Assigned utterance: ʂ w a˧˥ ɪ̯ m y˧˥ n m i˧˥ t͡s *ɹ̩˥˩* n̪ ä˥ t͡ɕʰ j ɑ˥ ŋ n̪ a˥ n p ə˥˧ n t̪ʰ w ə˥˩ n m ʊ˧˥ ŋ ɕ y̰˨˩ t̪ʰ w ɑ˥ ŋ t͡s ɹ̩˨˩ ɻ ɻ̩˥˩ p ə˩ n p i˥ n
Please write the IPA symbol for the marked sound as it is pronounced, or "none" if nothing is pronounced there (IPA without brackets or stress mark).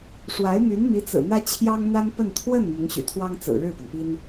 ɹ̩˨˩